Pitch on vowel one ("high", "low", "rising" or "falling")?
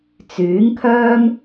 rising